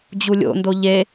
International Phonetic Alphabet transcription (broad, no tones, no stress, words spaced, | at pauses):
d͡ʑulʲo̰ndo ʎe